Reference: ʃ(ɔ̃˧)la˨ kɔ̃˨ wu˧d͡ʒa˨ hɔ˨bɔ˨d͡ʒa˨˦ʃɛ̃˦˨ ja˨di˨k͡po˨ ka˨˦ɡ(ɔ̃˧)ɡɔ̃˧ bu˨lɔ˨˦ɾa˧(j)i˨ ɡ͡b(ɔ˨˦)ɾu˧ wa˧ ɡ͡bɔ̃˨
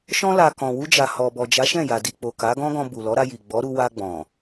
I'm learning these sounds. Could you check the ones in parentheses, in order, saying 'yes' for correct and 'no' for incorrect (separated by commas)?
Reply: yes, no, yes, yes